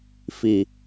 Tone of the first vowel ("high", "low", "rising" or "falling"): low